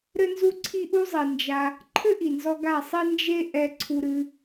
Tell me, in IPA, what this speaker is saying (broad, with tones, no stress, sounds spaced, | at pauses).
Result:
ɾ ɘ˦ n z u˦ ǀʰ i˦ ʔ u˦ zˤ i˨ n d͡ʒ a˧ | ǃʰ ɘ˦ ʔ i˨ n z ɔ˧ ɡ a˦˨ sˤ i˦ n d͡ʒ e˦ ʔ ɛ˧ ǀʰ u˧ ɾ ɨ˧